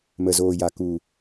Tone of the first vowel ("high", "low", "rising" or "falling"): low